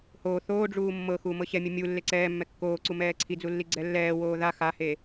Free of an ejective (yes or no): yes